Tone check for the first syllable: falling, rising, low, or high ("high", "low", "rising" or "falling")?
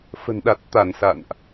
low